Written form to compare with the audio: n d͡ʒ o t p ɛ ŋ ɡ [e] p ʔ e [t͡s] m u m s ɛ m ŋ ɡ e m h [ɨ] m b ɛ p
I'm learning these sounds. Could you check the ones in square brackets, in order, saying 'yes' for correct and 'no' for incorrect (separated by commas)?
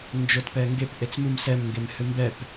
yes, yes, yes